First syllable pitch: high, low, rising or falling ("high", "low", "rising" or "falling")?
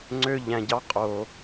high